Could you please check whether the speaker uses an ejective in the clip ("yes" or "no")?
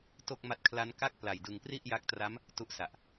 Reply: no